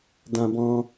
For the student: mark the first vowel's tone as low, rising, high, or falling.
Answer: high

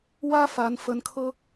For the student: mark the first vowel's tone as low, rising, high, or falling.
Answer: high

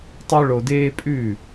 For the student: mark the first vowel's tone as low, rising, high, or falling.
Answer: high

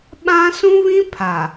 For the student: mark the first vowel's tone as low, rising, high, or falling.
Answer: high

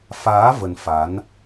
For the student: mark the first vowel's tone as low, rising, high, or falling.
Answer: rising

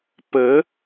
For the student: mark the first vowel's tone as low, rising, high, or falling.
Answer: rising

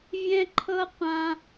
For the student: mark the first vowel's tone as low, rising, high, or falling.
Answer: high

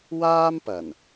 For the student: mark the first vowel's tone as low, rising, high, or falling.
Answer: high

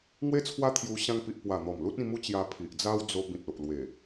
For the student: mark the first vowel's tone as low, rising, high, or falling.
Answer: high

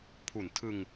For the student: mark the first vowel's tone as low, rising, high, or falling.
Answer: low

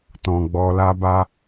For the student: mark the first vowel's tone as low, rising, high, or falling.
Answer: low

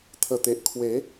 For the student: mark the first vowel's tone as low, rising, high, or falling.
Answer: low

